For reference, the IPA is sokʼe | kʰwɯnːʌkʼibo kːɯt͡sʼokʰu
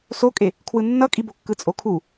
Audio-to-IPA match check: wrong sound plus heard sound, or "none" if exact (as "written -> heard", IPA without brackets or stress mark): none